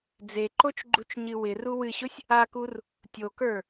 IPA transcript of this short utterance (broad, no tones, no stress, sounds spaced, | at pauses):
d͡z e ǃ o t͡ʃ ɡ͡ǃ u t͡ʃ ɲ ɨ w ɪ r u w ɨ ɕ ʊ sʲ | a k u r | tʲ o k ə˞